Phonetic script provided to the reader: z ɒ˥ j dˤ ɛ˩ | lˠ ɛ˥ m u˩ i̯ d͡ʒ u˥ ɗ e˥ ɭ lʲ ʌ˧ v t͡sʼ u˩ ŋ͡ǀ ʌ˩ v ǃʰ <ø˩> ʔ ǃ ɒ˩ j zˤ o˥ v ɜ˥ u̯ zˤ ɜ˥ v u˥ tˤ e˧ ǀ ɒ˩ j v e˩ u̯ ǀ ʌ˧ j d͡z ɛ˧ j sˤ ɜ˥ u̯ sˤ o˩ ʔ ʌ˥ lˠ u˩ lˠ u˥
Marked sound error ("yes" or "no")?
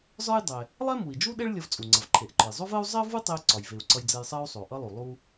yes